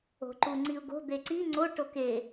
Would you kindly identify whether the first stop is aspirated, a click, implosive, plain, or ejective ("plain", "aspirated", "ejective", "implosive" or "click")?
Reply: click